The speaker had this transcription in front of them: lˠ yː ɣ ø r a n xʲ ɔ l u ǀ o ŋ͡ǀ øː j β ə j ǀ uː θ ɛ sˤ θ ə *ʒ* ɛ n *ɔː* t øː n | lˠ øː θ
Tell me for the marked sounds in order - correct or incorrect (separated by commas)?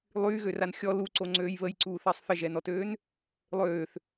correct, incorrect